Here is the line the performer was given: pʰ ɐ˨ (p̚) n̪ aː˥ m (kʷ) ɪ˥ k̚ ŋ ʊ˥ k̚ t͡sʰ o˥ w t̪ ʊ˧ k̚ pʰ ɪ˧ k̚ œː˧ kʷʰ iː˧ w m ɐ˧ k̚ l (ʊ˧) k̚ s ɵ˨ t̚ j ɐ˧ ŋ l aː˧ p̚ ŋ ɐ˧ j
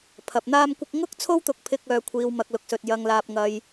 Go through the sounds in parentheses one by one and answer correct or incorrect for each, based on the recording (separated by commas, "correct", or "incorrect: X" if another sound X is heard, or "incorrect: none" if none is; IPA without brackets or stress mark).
correct, correct, incorrect: ʊ˨